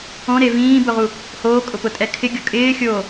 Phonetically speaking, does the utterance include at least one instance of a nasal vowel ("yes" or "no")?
yes